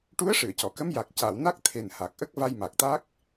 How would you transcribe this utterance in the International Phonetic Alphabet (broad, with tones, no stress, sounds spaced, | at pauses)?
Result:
ʈ u˧˥ ə̯ ʂ ɨ˨˩˨ ə̯ c ɔ˨˩˨ k ə˧˥ m j a˨˩ k̚ c a˨˩˨ w n a˦˥ k̚ t̪ʰ e˨˩ n h a˨˩ k̚ ʔ ə˦˥ k̚ v a˧ j m a˨˩ k̚ t̪ a˦˥ k̚